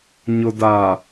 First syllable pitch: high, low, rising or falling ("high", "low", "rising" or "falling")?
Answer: low